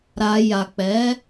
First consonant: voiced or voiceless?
voiced